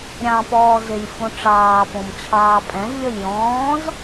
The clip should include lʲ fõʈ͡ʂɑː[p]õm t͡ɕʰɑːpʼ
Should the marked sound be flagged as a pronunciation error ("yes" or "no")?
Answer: no